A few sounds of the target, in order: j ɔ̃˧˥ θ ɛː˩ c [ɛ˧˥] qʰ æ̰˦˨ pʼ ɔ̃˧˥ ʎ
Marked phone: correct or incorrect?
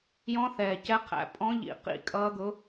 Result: correct